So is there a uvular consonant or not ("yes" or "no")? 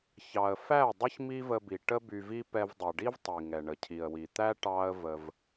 no